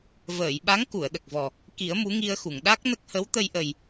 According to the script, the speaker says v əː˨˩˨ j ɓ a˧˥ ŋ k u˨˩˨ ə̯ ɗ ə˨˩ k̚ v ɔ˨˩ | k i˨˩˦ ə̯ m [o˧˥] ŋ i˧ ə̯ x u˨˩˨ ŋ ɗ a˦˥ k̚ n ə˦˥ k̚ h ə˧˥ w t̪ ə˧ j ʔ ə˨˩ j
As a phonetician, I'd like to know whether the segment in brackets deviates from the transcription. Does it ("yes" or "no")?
yes